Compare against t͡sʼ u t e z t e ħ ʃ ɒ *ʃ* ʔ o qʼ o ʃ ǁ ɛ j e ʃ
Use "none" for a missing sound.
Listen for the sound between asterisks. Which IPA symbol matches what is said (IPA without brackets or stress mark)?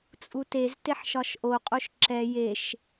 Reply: ʃ